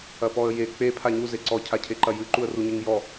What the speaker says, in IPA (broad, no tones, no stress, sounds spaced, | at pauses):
ɐ p ɔ ə̯ j e k͡p e pʰ a ɲ u z e ǀ ɔ cʰ a cʰ e ǃ ɐ j ɨ ǃ u ə̯ r u ɲ ɨ ŋ j ɔ